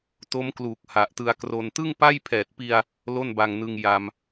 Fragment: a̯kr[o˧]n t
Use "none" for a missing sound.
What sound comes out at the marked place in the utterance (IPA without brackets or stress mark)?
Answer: o˧